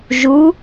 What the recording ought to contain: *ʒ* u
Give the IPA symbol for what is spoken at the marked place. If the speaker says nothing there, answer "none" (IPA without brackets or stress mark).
ʒ